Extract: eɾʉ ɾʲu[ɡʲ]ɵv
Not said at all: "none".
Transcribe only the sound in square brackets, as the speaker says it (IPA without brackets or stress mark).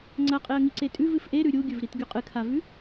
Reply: ɡʲ